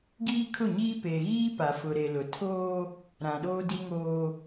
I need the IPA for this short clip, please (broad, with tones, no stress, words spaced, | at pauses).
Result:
ɡiː˦kʰʊ˦˨ɲiː˦ pe˨ɣiː˦ pa˨fʊ˨ɾe˨lʊ˨ tʰoː˦ | ɾã˨ɗoː˦di˦ŋoː˦